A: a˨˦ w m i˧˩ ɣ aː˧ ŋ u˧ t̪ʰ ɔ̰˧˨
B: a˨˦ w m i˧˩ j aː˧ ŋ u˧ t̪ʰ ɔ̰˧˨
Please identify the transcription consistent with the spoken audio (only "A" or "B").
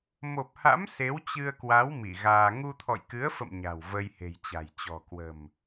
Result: A